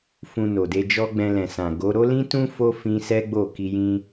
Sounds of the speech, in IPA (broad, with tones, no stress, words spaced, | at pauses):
fũ˧no˨de˧d͡ʒɔ˦ ɡ͡bɛ̃˧lɛ̃˨sã˨ ɡo˨˦ ɾo˦lĩ˦tũ˦ fo˦fĩ˧ sɛ˦ɡ͡bo˦˨ ki˧jĩ˦